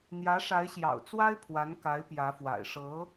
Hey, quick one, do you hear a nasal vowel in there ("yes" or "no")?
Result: no